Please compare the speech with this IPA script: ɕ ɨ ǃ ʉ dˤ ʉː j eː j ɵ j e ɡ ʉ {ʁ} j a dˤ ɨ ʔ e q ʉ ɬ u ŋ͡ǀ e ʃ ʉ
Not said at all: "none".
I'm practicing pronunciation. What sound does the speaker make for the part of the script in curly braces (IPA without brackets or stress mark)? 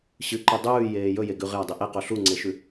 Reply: ʁ